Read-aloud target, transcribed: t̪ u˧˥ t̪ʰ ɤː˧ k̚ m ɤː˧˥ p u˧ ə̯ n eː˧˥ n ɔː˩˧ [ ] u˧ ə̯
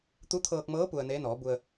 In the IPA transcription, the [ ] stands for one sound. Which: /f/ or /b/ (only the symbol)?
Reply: b